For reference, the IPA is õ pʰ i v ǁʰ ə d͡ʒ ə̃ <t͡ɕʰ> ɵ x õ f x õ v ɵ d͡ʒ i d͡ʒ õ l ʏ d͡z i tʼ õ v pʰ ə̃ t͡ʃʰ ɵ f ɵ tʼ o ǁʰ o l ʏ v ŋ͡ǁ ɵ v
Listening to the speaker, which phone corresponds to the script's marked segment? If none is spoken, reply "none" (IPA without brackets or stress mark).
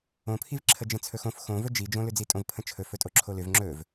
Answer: t͡sʰ